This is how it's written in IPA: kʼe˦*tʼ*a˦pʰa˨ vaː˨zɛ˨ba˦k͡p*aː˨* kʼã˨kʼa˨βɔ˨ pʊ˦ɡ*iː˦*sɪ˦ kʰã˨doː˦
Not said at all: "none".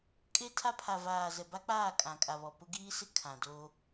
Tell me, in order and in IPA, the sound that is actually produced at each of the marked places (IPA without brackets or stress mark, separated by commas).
tʰ, aː˦˨, iː˦